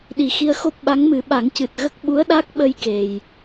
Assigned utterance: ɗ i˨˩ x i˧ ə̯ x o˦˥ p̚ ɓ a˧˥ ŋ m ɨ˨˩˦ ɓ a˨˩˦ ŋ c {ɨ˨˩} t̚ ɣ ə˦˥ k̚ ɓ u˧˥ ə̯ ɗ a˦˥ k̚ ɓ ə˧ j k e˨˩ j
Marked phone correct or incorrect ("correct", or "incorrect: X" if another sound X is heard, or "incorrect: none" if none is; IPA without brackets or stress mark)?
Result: correct